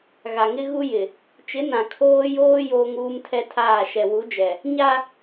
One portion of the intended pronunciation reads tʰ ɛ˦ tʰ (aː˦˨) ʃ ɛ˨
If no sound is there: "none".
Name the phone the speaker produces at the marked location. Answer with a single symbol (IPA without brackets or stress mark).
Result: aː˦˨